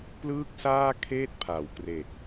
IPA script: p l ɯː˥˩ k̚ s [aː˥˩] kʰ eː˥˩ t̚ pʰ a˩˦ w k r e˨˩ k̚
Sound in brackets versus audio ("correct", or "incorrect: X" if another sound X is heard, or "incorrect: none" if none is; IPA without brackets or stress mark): correct